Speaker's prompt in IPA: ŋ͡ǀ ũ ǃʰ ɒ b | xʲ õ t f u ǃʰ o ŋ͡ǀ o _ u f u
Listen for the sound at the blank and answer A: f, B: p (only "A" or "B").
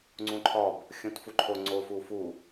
A